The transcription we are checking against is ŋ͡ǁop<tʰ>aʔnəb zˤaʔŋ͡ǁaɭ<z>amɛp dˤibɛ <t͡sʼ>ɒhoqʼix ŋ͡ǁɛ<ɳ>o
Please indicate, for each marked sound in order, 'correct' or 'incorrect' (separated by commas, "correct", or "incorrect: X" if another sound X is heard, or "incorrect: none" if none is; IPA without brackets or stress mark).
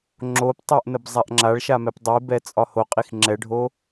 incorrect: tˤ, incorrect: ʃ, correct, incorrect: ɖʱ